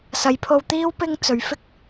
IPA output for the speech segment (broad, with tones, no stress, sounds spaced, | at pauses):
s ɐ˨˧ j pʰ o˧ w t̪ iː˥ w p ɪ˥ ŋ t͡s ɵ˨˧ ɥ f ɪ˥ k̚